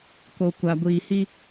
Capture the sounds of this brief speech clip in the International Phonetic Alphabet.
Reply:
k o˨ kʷ a˨ ɡʷ iː˨ h i˦

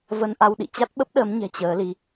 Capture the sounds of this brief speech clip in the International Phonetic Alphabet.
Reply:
v ə˧ n ʔ a˧ w ɗ ḭ˧˨ t͡ɕ a˦˥ t̚ ɓ ə˦˥ p̚ ɗ əː˨˦ m ɲ ɛ̤˨˩ t͡ɕ əː˨˦ l i˨˦

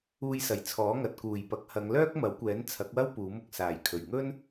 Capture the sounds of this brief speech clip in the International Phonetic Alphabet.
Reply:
uː˧ j s ɐ˨˩ j t͡sʰ ɔː˨˥ ŋ ɐ˨ t̚ k uː˨˩ j p ɐ˨˥ k̚ h ɐ˨˧ ŋ l œː˥ k̚ m ɐ˨˥ w kʷ ɛː˨˥ n t͡sʰ ɐ˨˥ k̚ w ɐ˥ w p uː˨˥ m ʊ˧ k̚ s aː˨˩ j kʰ ɵ˨˩ ɥ ŋ ɵ˥ n

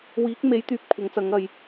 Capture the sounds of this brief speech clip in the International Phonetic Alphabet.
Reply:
w iː˨˥ k̚ m e˨˥ j t̪ yː˨ p̚ kʷʰ ɐ˨˥ ŋ t͡s ɐ˨˥ ŋ ɐ˨ j

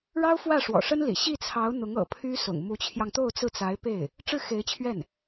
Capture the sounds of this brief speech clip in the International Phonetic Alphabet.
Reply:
ɻ ɑ˥ ʊ̯ f w ä˥˩ ʂ w ɔ̰˨˩ ʂ ə˥ n l ḭ˨˩ ɕ i˥˩ t͡sʰ ɑ˧˥ ʊ̯ n̪ ʊ˧˥ ŋ ɤ̰˨˩ pʰ y˥ s ʊ̰˨˩ ŋ m u˧˥ t͡ɕʰ j ɑ˧ ŋ t̪ o˥˧ ʊ̯ t͡s ɹ̩˥˩ t͡s a˧˥ ɪ̯ p e˥˩ ɪ̯ | ʈ͡ʂ ɻ̩˥˩ x e˧˥ ɪ̯ t͡ɕʰ ɥ ɛ˥˩ n

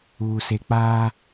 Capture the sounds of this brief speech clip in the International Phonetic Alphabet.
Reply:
uː˨ s e˨ k͡p aː˦

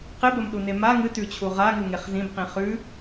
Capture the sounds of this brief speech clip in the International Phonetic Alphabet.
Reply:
q e b ɐ m ɗ u n e m a ŋ ɨ t ʉ t͡ɕʰ u ʁ a ŋ u ŋ e χ z ĩ b q ĩ χ ʉ

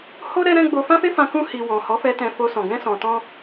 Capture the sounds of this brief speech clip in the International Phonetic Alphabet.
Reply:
h o˦ ɾ ɛ˦ ɾ ɛ̃˦ ɡ͡b o˧ f ã˦ f e˦ f ã˧ k ũ˧ h i˨ w ɔ̃˨ h ɔ˨˦ f ɛ˧ t ɛ̃˧ f o˧ s ɔ̃˨ ɡ ɛ̃˧ s ɔ̃˨ t ɔ̃˧

